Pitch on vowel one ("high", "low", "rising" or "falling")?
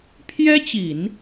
high